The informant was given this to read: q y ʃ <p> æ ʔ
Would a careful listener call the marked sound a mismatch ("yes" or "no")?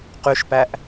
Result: no